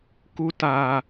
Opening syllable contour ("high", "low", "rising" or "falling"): high